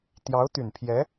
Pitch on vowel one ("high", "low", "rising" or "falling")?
rising